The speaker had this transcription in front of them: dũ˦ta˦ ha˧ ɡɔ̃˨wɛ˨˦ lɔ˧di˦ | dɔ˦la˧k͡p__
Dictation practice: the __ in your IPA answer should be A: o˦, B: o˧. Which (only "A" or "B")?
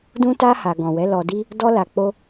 A